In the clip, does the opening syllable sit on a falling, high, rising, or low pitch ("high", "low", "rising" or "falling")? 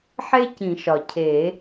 high